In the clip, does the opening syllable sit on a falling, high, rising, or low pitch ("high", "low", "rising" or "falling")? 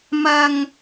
high